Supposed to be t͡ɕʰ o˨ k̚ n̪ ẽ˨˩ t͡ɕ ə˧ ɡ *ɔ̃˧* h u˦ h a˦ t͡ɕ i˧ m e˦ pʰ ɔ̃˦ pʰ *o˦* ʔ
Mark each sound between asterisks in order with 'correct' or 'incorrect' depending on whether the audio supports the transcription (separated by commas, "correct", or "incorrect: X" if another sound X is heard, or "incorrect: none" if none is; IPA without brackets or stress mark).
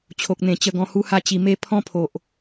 correct, incorrect: o˨